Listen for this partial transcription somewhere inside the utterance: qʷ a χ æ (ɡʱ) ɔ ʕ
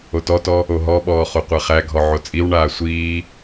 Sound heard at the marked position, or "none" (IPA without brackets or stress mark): ɡʱ